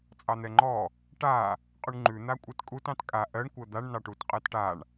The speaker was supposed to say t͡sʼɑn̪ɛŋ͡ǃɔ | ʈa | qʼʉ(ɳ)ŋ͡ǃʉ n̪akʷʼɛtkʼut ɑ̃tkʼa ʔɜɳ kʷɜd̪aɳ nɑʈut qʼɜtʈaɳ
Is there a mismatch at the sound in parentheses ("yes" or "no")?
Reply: no